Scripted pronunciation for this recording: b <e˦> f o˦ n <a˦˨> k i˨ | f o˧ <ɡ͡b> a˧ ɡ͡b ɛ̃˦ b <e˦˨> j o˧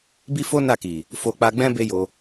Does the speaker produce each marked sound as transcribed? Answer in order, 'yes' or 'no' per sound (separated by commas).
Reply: no, yes, no, no